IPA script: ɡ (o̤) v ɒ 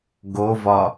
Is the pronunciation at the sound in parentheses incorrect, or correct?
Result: incorrect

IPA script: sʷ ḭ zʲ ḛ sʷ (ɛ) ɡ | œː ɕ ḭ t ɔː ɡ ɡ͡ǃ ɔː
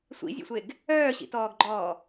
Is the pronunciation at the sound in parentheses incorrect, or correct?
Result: incorrect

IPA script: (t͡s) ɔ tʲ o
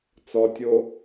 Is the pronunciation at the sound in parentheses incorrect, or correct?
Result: correct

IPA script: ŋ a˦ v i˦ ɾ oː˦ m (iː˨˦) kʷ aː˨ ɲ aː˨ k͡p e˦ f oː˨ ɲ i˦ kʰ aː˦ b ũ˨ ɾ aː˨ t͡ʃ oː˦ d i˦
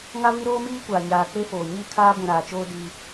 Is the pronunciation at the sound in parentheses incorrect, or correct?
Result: incorrect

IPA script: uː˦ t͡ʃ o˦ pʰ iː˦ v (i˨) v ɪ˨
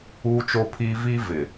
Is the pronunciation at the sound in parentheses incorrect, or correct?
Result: incorrect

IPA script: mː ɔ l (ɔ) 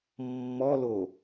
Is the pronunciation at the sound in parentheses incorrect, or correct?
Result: incorrect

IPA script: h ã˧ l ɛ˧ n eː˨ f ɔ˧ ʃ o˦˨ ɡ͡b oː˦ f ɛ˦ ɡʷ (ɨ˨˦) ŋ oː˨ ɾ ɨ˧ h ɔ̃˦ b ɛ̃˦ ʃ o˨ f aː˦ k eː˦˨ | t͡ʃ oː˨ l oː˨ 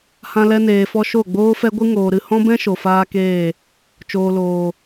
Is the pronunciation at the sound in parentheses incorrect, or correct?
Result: incorrect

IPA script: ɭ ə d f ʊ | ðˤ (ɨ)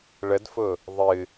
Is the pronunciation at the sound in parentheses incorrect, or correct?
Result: correct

